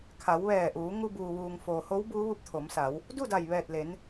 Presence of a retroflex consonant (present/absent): absent